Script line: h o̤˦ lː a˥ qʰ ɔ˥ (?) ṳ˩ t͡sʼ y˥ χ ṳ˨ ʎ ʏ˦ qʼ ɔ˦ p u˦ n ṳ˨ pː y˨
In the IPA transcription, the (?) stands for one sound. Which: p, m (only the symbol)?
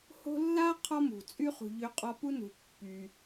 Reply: m